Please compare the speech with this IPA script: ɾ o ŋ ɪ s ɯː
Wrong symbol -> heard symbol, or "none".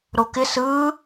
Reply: ŋ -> k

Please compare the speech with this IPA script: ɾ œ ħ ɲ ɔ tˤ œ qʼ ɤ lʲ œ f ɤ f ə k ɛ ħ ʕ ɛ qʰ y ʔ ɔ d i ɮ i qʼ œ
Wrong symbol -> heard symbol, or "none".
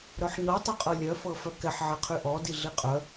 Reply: ə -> œ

